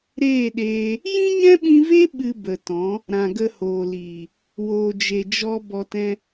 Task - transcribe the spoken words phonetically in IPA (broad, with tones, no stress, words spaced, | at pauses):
ɾeː˦˨ɗeː˧ | jĩ˦ɲɛ̃˦ɓĩ˧ve˦ ɓɨ˧bə˨tɔ̃˨˦ | ɾã˨ɡə˧hoː˨ liː˨ | woː˨d͡ʒe˨d͡ʒɔ˧ bɔ˧tɛ̃˦